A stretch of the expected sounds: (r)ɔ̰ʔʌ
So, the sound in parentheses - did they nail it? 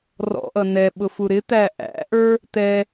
yes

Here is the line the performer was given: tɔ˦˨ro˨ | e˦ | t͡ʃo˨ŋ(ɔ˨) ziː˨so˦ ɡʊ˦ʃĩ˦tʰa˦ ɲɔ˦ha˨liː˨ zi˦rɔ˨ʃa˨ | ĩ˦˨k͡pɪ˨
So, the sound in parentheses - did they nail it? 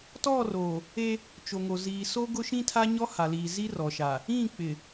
no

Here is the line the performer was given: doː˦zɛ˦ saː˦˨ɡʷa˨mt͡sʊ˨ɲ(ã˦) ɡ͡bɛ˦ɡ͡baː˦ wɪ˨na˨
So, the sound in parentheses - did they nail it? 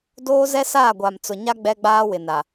no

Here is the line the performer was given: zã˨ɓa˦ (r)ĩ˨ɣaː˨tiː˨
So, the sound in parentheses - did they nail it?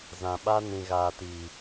no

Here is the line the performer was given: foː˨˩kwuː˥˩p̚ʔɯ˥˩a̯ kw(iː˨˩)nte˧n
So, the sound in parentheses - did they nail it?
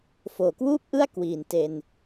yes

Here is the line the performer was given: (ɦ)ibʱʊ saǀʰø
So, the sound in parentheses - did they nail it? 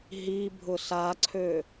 yes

